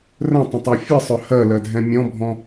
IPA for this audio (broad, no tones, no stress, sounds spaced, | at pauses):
r ə̃ tˤ ə̃ tˤ œ fʲ ɨ sˤ œ h ɜ l ɜ dʱ ɛ̃ mʲ ɔ̃ bʱ ɔ̃